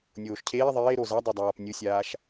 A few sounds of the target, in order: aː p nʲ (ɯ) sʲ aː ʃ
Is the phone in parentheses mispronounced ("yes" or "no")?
no